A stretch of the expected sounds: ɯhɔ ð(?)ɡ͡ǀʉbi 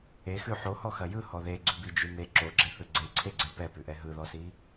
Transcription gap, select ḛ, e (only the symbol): e